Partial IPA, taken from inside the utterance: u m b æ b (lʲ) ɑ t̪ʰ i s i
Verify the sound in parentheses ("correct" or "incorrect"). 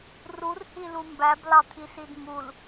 incorrect